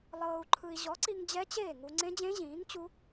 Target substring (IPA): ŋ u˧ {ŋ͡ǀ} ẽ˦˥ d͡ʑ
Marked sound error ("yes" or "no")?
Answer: no